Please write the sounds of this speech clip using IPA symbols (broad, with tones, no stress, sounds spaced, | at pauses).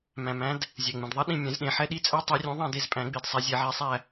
m æ̃˩ m æ̃˨˦ d | zʲ ɛ˩ ŋ͡m ẽ˩ d ðˤ ɛ˦˥ ɗ ĩ˦˨ mʲ ɛ̃˨˩˦ z ɗ ẽ˩ ħ ɛ˦˥ ɗ i˦˥ t͡sʼ æ˦˥ tˤ ɛ˨˦ rʲ ũ˨˦ ðˤ ɛ̃˦˨ d e˦˨ z pʼ æ̃˨˩˦ ɡ͡b i˩ d sˤ æ˨˦ zʲ e˨˩˦ ʕ e˨˦ sˤ æ˦˨